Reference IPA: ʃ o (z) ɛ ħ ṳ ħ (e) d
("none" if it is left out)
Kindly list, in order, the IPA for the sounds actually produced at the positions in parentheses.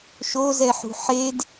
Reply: z, e

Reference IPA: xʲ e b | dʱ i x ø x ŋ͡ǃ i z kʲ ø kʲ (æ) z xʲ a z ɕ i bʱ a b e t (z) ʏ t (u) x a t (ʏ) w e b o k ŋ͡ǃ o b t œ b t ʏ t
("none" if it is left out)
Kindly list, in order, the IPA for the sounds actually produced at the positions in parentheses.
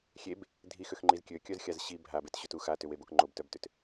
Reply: œ, ɕ, u, ʏ

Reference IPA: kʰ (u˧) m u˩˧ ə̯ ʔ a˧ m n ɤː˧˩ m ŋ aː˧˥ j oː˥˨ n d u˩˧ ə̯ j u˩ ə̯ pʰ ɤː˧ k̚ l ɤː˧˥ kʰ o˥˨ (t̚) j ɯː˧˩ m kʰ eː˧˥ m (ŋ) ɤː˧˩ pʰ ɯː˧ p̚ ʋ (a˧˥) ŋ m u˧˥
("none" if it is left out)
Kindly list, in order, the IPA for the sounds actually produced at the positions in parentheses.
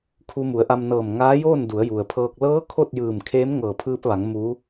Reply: u˧, t̚, ŋ, a˩˧

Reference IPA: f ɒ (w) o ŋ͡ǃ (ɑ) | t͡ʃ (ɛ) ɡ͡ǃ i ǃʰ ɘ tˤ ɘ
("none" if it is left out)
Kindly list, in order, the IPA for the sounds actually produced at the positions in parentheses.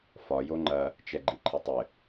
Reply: j, ɐ, ɛ

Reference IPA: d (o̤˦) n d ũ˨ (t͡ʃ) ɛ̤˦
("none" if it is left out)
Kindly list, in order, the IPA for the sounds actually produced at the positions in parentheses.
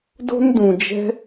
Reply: o̤˦, d͡ʒ

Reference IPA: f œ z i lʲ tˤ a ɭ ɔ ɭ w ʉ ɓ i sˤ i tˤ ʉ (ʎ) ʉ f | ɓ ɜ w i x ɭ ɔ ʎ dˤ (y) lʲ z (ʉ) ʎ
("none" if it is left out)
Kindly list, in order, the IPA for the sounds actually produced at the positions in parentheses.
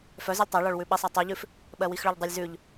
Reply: ʎ, y, ʉ

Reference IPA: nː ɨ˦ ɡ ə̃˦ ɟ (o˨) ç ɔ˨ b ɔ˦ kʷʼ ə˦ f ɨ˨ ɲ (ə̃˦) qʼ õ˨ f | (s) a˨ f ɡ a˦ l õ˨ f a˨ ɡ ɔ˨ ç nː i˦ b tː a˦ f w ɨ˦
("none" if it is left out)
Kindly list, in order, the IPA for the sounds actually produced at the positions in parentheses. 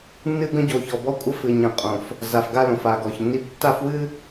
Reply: o˨, ə̃˨, z

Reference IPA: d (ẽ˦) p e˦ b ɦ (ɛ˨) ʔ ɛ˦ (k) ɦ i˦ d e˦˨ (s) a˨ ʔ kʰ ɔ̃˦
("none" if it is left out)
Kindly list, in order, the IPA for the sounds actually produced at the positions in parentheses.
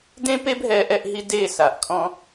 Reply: ẽ˦, ɛ˦, ʔ, s

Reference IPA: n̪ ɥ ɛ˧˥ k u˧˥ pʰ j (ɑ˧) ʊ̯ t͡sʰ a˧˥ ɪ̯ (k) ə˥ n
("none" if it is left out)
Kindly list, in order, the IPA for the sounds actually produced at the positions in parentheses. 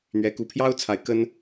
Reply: ɑ˥, k

